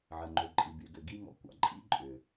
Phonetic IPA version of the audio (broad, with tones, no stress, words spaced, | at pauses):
ʕə˨ŋ͡ǃø˨ǃʼi˨ by˨ɡʏ˨ɡi˦ ŋɔ̰˨kʷɑ̰˨ǃʼḭ˦ ǃʼʏ˨